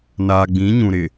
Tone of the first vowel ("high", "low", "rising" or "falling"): low